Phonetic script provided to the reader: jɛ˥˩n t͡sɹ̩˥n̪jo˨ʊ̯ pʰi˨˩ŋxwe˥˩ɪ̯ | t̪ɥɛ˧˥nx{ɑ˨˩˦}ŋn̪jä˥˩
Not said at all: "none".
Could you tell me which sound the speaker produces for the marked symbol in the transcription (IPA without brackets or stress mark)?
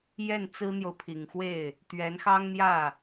ɑ˥